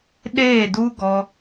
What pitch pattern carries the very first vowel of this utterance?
falling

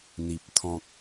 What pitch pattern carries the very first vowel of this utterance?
low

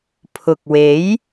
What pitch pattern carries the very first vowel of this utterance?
low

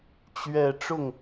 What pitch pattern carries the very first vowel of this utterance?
low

